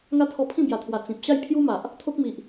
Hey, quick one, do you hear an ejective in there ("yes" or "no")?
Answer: no